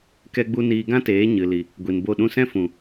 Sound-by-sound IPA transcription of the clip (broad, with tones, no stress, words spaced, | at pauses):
kɛ˦ɡ͡bu˦ niː˧ɡã˦teː˨˦ ɲɨ˨li˨ | ɡʷi˨nbo˦˨ɗũ˦ sɛ̃˦fũ˨